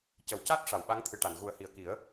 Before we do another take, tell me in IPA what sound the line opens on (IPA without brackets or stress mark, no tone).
c